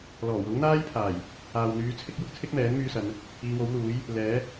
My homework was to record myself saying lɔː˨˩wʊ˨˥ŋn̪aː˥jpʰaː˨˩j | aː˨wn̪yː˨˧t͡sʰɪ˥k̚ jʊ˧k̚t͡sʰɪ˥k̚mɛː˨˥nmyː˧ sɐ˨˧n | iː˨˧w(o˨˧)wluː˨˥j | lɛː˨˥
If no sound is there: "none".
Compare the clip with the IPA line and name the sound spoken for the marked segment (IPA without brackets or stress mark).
o˨˥